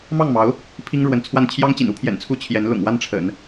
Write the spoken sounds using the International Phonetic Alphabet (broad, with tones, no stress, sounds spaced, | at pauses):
m ɑ˥˩ ŋ m ɑ˧˥ ʊ̯ | pʰ i˥ ŋ ɻ w ə˧˥ n t͡sʰ w a˥˩ n t͡ɕʰ j ɑ˥ ŋ t͡ɕ ḭ˨˩ n u˥ pʰ j ɛ̰˨˩ n t͡sʰ u˥˩ t͡ɕʰ j ɛ˧˥ n l ʊ̰˨˩ ŋ w a˥˩ n ʈ͡ʂʰ ə̰˨˩˦ n